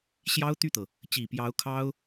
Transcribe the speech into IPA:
ɕ j ɑ˥ ʊ̯ t̪ y˥˩ t̪ ɤ˩ | t͡ɕ i˨˩ p j ɑ˧˥ ʊ̯ kʰ ɑ˥ ʊ̯

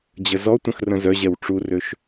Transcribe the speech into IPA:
d͡ʑ ə z ɔ tʷ ə̃ x r ə̃ z œ ʑ ɛ w ʈ͡ʂ u r ø ʃ

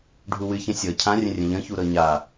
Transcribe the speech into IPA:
ɖʱ u w ɨ ç ə̃ sʲ ɤ cʰ ã rʲ ə̃ rʲ ə̃ ʎ ə̃ ç u ɾ ɤ ɲ a

